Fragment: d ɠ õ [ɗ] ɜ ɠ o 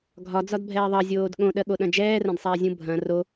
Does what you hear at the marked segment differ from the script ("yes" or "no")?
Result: no